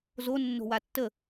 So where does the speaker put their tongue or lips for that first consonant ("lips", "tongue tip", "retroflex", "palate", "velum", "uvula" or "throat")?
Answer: tongue tip